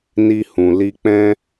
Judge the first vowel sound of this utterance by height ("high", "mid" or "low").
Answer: high